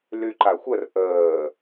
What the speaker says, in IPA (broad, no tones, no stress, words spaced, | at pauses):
lyǃaxʷər ʔəː